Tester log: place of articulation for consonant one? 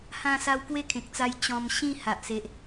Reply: glottal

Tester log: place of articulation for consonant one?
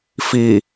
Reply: labial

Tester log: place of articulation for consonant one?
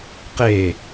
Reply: uvular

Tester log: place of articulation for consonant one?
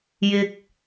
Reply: palatal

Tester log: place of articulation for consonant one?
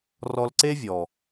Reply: alveolar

